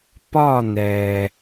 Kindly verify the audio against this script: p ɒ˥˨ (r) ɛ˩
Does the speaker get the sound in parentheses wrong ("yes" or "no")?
yes